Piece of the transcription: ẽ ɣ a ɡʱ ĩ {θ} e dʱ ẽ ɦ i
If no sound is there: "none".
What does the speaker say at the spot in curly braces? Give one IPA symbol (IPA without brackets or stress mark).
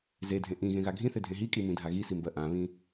θ